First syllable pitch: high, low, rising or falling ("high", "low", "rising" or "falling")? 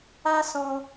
high